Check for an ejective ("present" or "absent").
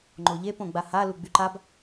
absent